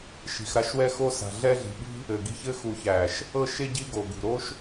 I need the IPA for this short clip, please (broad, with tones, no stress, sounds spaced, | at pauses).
ʃ i̤˨ x ɾ a˧ ʃ w ɛ˧ x o˧ s a̤˨ ɮ ɛ˧ ɮ i̤˨ ɓ i̤˦ | ɘ˨ ɡ i̤˧ ç ɘ˧ x u˨ ç æ˨ ʃ | ɤ˧ ʃ e˧ ɟ i˦ ɡ o˨ ɡ ṳ˨ ɾ o˦ ʃ